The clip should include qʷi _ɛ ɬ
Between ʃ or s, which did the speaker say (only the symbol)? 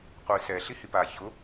s